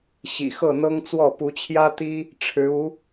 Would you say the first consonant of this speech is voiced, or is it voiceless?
voiceless